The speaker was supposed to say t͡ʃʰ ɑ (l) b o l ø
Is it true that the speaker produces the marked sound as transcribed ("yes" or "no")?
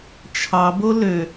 no